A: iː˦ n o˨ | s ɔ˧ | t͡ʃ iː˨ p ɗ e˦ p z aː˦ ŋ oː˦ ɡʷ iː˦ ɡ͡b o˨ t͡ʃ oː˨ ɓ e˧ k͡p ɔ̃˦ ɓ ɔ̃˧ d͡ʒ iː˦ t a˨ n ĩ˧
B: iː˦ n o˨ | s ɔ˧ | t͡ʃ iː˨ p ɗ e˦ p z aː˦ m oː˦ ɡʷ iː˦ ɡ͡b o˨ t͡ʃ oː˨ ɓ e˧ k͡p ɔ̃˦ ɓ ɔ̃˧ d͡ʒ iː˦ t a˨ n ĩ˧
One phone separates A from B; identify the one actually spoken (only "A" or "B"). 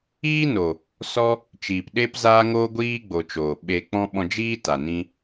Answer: A